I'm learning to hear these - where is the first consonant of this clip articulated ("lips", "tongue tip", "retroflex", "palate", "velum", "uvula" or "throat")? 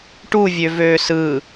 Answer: retroflex